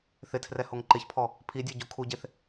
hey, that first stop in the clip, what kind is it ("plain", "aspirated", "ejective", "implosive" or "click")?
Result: aspirated